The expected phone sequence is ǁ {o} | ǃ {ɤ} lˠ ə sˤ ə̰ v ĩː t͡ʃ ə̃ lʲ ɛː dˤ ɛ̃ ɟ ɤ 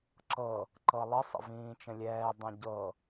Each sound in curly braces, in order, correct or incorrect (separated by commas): incorrect, correct